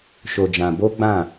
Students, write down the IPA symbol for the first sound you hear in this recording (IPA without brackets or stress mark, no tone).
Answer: ʃ